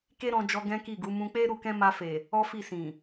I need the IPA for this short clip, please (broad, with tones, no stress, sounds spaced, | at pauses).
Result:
k e˦ ɾ ɔ̃˧ d͡ʒ ɔ˧ ɡ ɛ̃˦ k i˦˨ ɡ u˨˦ m ũ˧ k͡p e˦ ɾ u˧ k ɛ̃˦ m a˧ f e˨ | ɔ˦ f i˦˨ s ĩ˨